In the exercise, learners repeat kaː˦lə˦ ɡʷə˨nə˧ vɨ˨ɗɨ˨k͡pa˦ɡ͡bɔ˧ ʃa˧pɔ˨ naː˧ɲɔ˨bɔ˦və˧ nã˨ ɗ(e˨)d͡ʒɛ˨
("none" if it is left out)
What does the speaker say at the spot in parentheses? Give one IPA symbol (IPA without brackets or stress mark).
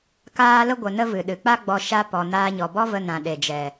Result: e˨